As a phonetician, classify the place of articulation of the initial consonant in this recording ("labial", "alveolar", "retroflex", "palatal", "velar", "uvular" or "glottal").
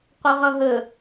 uvular